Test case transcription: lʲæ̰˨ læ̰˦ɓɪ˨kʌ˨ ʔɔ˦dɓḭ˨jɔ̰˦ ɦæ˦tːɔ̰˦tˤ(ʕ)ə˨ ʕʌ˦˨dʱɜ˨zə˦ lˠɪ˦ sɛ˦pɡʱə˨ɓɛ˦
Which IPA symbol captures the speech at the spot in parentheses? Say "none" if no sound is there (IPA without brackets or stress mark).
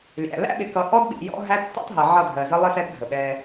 ɦ